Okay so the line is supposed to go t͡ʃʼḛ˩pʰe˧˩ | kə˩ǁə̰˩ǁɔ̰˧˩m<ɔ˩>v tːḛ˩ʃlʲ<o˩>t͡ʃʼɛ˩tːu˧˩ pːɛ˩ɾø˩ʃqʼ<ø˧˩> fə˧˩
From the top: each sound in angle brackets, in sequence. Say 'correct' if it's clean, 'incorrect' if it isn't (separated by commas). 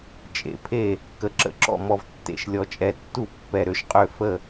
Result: correct, incorrect, correct